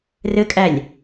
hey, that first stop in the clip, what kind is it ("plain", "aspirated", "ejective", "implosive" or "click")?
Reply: ejective